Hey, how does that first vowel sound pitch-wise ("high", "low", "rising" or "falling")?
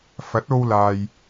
rising